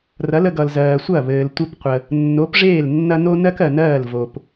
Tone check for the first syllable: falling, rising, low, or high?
rising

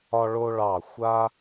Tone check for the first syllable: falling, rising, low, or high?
high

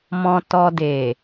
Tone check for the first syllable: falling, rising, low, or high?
low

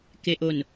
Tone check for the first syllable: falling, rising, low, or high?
low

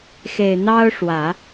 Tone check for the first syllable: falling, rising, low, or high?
low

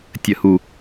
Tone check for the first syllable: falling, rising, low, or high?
low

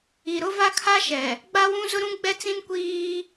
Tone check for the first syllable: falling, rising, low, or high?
low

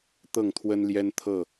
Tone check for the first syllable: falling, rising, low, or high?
falling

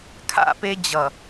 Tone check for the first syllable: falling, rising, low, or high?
falling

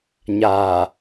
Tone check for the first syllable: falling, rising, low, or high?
low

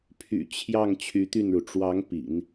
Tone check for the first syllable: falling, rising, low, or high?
low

